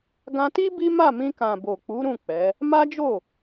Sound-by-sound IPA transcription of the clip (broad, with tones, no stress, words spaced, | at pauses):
ɡã˧ti˦ bi˦ma˦˨mĩ˧kã˨ bo˨k͡pu˨˦ ɾũ˦˨k͡pɛ˨˦ | ma˦ d͡ʒo˦˨